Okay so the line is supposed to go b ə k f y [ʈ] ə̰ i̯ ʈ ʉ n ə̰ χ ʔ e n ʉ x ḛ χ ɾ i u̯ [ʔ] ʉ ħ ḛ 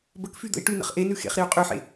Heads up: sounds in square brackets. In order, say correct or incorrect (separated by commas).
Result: incorrect, incorrect